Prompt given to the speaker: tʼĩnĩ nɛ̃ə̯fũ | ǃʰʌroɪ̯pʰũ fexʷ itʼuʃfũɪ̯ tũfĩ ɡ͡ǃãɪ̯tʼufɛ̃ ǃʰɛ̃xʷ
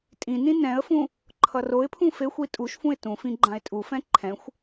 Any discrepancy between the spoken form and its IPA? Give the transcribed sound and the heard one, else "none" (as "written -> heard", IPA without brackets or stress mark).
none